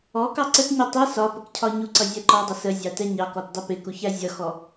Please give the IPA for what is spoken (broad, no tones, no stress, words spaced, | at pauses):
ɔ kɑǀətɲi tˤi sɒ pəkcʰɒɲuǀʌ zʲæǃɔdˤɪ səzʲɑ tɛɲɑkɔt dˤɪpɪkuç æzʲʌxɔ